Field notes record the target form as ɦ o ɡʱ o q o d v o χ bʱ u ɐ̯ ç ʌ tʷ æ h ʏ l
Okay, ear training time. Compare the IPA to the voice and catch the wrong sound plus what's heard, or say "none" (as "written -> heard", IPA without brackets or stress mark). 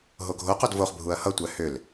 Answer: ç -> h